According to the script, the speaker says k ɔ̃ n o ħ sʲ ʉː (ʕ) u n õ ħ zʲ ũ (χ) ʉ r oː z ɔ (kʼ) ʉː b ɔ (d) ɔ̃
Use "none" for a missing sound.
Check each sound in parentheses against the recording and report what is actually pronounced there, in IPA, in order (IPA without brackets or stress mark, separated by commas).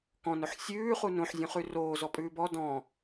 χ, χ, pʼ, d